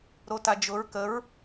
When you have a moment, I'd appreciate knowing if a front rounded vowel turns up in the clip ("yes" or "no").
no